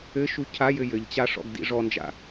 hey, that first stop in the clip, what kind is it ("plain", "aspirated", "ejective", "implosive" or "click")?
aspirated